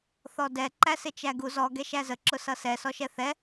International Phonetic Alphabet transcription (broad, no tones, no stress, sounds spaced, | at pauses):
θ ɔ d ɛ ǃ æ s ɪ t͡ʃ æ ɡ u z ɔ ɡ ɛ ʃ æ z ə ǁ ʊ s ʌ s ɛ s ɔ ʃ ɛ θ ɛ